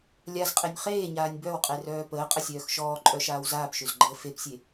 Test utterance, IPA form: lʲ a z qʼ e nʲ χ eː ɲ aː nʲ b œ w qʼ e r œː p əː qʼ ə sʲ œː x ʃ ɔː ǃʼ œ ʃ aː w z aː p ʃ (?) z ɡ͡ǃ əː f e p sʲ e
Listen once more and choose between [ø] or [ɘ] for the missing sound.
ø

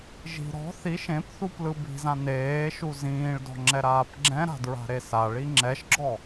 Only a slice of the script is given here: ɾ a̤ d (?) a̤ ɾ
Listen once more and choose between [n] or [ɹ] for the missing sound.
ɹ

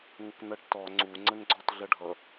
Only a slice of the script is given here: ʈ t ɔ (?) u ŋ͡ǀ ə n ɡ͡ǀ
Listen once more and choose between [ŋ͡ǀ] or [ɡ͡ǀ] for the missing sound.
ŋ͡ǀ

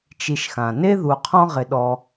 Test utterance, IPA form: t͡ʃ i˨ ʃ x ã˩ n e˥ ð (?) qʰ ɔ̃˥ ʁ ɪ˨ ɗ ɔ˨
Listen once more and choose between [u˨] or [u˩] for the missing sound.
u˨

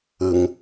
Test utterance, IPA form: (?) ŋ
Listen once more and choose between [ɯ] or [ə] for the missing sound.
ɯ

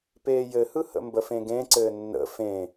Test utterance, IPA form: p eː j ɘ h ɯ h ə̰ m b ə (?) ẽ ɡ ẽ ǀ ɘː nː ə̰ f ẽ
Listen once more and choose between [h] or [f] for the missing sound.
f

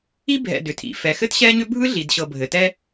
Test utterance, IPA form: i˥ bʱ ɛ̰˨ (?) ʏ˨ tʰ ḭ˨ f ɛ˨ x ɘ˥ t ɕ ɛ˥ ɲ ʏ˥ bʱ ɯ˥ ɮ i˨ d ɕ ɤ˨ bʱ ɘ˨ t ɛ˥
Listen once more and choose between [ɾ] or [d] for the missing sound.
d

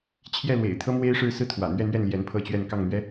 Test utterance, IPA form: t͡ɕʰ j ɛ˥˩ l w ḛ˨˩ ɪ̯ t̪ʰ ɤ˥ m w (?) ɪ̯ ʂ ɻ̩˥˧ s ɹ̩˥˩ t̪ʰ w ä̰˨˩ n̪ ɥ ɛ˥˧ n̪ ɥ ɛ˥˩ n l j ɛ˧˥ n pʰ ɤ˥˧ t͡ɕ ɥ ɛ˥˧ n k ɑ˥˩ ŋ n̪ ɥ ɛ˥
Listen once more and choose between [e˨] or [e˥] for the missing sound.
e˥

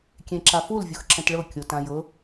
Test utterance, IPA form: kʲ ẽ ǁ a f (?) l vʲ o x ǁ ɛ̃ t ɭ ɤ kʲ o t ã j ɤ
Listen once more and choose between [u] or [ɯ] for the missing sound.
u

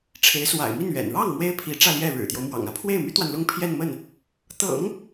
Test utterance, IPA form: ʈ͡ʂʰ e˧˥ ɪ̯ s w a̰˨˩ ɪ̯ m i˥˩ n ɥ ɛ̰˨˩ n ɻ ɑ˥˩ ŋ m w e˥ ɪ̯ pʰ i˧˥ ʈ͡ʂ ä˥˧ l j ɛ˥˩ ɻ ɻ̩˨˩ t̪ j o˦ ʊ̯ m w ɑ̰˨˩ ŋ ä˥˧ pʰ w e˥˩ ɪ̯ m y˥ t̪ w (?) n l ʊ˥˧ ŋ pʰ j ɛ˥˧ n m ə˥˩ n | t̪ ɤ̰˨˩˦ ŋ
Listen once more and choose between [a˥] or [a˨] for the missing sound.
a˨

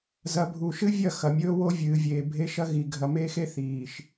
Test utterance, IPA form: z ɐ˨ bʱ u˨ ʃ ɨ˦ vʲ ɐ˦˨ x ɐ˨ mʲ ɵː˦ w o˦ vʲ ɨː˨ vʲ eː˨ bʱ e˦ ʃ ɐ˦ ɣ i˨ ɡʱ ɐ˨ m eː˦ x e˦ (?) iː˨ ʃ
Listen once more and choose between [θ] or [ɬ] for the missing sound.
θ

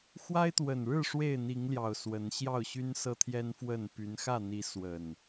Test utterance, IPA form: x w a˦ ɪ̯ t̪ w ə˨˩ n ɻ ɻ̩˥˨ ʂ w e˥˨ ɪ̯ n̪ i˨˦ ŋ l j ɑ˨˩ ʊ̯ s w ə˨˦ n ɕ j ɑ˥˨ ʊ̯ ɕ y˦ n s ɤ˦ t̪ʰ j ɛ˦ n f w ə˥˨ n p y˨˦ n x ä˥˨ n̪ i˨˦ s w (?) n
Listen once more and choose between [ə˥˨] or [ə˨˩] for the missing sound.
ə˨˩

